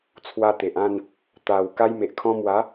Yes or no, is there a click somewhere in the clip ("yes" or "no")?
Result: no